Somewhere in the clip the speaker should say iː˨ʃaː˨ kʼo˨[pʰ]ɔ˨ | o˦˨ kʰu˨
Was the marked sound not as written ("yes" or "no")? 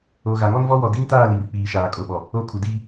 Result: yes